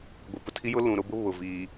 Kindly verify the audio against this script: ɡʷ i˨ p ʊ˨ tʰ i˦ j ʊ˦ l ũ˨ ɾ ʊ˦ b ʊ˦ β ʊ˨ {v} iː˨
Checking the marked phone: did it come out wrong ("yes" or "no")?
no